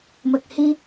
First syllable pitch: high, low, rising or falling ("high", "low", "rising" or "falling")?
low